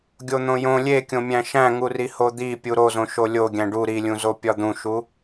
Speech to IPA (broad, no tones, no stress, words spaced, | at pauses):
ɡʲon̪õjõ lʲekʲõmʲæ̃ ʃæ̃ŋuriho d̪i pʲuɾozõ ʃolʲo ɡʲæ̃ɖu ɾilʲũzo pʲɒd̪ũʃu